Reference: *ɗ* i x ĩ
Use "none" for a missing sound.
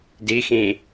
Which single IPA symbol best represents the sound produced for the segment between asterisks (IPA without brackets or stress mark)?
d